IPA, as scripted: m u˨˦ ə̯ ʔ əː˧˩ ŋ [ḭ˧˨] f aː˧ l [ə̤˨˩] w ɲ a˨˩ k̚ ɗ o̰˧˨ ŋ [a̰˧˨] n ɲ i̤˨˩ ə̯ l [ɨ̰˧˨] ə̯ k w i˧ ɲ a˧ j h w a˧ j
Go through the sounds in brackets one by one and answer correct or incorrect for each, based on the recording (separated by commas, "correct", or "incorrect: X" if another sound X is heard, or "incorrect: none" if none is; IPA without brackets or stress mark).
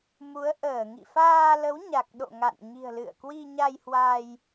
correct, incorrect: ə˨˦, correct, correct